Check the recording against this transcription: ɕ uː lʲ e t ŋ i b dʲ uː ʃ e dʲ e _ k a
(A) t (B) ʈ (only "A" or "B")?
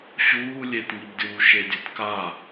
A